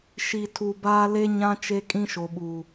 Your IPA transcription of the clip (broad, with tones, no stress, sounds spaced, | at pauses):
ʃ i˨ tʰ u˨ b aː˦ l e˦ ɲ ã˦ t͡ʃ e˦ kʼ ĩ˦ ʃ o˨ ɓ uː˨